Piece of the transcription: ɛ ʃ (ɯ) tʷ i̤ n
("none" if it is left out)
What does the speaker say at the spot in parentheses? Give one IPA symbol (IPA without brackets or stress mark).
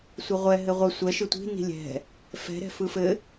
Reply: ɯ